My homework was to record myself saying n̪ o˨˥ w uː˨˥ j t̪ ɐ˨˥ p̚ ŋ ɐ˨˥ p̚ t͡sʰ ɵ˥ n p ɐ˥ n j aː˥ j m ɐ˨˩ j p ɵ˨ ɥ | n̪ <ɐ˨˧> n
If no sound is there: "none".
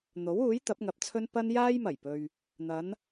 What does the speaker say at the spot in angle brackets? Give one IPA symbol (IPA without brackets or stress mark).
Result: ɐ˨˧